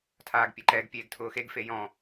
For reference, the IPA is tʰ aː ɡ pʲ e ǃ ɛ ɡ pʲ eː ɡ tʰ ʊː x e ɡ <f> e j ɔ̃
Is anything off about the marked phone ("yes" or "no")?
no